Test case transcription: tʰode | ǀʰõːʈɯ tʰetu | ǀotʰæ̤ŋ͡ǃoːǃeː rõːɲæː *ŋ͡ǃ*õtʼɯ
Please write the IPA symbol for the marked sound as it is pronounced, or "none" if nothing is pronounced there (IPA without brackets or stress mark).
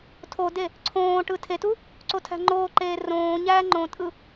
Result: ŋ͡ǃ